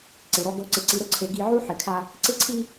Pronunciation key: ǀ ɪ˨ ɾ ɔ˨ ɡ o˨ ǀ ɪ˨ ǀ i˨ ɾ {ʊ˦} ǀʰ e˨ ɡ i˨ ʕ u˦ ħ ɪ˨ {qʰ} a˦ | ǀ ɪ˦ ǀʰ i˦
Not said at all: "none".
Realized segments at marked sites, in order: ʊ˦, kʰ

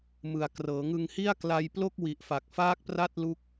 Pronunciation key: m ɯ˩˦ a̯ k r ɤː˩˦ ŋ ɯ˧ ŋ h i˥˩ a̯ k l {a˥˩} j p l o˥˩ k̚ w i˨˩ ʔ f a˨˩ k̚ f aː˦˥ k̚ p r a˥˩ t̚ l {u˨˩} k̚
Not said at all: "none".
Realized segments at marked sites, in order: a˧, u˦˥

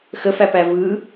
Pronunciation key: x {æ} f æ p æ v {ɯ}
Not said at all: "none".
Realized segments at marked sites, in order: ə, ɯ

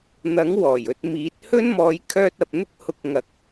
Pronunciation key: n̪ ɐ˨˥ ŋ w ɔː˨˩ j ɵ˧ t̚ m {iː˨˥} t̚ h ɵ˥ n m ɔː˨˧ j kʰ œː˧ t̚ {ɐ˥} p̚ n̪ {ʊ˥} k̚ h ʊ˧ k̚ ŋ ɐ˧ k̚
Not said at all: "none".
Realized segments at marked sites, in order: iː˨˥, ɐ˨, ʊ˥

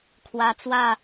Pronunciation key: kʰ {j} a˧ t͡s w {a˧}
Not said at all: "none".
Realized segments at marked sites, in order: w, a˥˧

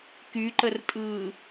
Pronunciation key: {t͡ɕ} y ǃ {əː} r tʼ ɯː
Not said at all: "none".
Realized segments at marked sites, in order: k, ə

